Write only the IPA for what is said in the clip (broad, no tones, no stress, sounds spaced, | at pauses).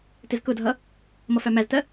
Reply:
t ɪ z k ʊ dʱ ʌ | m ʌ f æ m æ z t ɜ